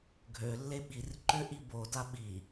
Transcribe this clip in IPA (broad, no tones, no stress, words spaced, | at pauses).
ɡʱø lːeɓir ǃøʔibo daɓi